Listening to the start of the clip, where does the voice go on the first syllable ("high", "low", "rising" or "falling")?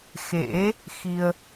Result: rising